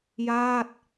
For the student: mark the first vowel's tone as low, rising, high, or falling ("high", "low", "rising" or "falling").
falling